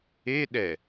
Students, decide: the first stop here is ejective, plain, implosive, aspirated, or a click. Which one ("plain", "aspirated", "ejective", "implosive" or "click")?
implosive